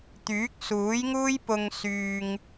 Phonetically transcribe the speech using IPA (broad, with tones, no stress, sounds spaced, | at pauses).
t̪ yː˨˥ k̚ s uː˨˥ j ŋ uː˥ j p ʊ˥ ŋ s yː˧ ŋ